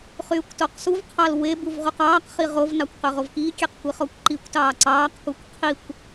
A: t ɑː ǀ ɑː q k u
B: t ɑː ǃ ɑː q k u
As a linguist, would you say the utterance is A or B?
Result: A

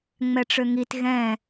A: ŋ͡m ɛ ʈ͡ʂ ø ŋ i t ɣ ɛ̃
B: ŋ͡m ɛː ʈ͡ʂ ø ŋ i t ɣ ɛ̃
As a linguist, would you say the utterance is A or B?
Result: A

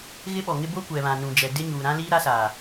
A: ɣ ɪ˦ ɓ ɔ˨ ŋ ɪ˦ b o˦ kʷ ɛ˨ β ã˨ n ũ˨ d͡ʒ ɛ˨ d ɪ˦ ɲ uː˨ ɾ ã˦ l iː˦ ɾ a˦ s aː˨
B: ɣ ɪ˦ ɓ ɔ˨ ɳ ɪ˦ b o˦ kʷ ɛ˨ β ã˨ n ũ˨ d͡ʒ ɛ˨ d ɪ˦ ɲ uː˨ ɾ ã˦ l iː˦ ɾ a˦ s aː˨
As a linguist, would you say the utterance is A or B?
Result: A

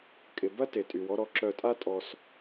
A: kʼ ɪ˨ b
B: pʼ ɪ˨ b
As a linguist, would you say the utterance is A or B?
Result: A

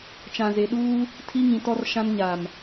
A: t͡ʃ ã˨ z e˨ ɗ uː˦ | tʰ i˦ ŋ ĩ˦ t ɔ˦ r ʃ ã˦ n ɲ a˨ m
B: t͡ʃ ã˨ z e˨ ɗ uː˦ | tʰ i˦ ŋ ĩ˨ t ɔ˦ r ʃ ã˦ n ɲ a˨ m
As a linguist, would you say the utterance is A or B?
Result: B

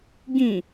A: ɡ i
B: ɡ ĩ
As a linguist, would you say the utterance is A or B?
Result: B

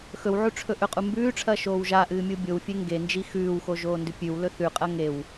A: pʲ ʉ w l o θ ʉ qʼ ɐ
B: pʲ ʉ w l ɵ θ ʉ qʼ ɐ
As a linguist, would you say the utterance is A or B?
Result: B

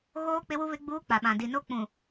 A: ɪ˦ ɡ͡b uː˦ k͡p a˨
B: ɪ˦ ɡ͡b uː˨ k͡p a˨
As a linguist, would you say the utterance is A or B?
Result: A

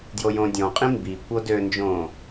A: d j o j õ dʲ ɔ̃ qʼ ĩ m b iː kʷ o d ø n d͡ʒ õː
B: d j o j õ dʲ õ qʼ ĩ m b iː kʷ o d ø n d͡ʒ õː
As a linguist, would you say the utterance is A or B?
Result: A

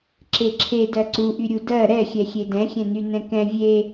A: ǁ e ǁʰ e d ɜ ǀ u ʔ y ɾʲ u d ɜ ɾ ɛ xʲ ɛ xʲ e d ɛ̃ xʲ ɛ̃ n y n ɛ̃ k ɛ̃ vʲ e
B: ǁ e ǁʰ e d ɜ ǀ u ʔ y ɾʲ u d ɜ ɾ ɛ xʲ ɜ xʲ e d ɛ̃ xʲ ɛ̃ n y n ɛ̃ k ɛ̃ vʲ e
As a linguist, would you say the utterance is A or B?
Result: A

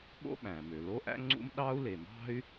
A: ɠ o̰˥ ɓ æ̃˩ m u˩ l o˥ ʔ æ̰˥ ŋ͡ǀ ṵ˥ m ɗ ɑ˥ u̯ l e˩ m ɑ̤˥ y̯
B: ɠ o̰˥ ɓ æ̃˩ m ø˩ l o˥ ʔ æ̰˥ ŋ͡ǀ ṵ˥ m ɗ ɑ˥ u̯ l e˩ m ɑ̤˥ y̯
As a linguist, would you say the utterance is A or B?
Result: B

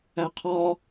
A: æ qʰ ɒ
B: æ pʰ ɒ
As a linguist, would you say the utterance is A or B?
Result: A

